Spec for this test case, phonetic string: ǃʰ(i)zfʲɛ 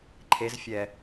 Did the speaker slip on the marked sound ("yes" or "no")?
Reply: yes